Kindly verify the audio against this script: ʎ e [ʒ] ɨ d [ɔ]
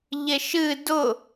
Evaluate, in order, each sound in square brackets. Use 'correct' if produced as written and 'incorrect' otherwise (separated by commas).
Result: incorrect, incorrect